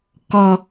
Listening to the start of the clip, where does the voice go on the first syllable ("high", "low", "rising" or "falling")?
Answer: high